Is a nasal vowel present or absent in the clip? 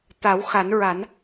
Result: absent